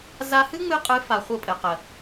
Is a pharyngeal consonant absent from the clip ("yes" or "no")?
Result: yes